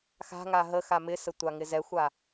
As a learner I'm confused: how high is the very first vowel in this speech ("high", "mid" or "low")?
low